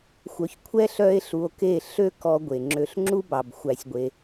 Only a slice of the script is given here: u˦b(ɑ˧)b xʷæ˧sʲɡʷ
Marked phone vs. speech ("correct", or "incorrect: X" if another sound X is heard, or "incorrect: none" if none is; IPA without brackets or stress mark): incorrect: ɑ˨